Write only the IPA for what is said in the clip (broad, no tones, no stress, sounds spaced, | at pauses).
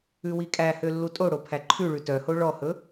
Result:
ʉ w i kʼ æ h ø lː u tʼ o ɽ o pʰ æ ǃʰ ʉ ɭ ʉ t œ h o ɭ ɔ h ɵ